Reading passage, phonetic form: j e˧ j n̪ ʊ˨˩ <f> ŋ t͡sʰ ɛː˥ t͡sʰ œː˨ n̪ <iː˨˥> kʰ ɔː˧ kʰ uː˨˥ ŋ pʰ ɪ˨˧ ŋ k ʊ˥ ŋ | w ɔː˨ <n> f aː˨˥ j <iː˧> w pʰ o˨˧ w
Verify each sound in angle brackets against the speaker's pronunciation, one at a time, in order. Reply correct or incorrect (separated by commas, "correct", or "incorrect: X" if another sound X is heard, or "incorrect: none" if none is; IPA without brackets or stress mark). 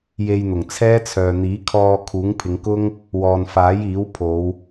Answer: incorrect: none, correct, correct, incorrect: iː˨˥